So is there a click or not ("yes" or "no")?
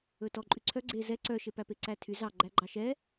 yes